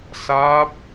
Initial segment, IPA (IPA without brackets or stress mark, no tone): s